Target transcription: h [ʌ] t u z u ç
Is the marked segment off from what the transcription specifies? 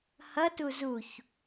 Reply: no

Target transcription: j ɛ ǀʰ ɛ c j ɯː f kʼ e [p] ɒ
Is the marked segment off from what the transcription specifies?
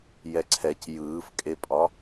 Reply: yes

